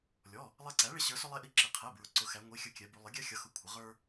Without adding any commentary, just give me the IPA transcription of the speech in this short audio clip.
lʲɔ˩˧˩ | lˠɛ˧ǀæ˩˥ɭɪ˩˥ ɕə˞˩˥ sʊ˧lˠɛ˧ʔi˧ ǁɪ˩˧˩qʰɛ˩˧˩bɹʊ˩˥ ǀʊ˩˧xæ˩˧ŋʷi˩˧˩xʲə˧ kʲɛ˩˧bu˩˧lˠɪ˩˥ ɡʲæ˧xʲʌ˩˧xʊ˩˧˩ kʷʰə˩˧ ʁə˞˧

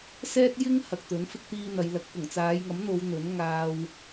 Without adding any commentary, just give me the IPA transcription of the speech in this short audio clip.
sɛː˥t̚jɪ˥ŋ hɐ˨k̚t̪ɵ˨˥n fɪ˥k̚t̪iː˥n̪ɐ˨˧jlɐ˧k̚ pʊ˨˩ŋt͡saː˨˧jŋɐ˨˥mn̪o˨˧w n̪ɵ˨˥n ŋaː˧w

